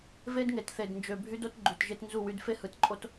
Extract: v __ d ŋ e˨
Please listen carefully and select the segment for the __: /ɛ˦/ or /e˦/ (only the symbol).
e˦